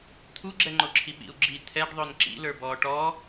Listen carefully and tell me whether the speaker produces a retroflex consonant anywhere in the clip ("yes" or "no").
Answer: yes